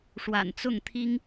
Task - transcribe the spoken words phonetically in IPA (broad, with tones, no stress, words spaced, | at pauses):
ʂwa̰˨˩nt͡sʊ˥˩ŋt̪ʰi˥ŋ